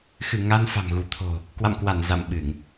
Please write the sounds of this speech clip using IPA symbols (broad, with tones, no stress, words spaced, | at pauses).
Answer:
xɨ˧˩ ŋa˧n fa̤˨˩mɣu˧˩ t̪ʰo̤˨˩ | kwa̰˧˨mkwa˧˩n za̰˧˨mɓɨ˧˩˨ŋ